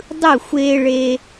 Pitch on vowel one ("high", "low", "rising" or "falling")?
falling